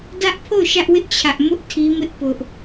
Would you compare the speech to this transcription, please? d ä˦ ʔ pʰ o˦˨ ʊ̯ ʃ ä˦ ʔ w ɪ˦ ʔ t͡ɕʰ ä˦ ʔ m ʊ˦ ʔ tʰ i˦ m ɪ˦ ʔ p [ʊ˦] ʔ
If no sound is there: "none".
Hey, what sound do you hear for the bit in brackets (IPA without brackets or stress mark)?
ʊ˦